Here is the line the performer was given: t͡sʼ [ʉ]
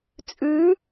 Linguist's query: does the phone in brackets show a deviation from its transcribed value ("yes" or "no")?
no